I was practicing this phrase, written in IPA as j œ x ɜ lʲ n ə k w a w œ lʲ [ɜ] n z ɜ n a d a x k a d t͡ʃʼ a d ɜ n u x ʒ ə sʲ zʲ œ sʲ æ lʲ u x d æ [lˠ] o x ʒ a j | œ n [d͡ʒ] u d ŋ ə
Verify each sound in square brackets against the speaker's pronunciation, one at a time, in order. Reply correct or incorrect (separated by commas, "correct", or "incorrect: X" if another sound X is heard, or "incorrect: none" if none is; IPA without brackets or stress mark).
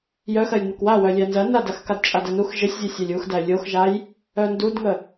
incorrect: æ, incorrect: lʲ, incorrect: d